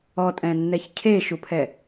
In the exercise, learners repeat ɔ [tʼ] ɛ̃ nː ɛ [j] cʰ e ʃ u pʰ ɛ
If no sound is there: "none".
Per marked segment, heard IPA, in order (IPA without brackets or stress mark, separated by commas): tʼ, ç